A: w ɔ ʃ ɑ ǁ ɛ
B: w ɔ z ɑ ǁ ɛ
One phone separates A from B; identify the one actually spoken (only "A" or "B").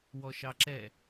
A